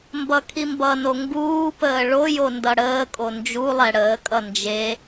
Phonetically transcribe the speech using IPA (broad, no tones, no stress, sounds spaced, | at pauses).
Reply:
m b ʌ kʰ i m b ʌ n o ŋ ɡ uː p əː ɭ o j o n d ʌ ɽ əː kʼ o n d͡ʒ u lˠ ɛ ɽ əː kʼ ʌ n d͡ʒ e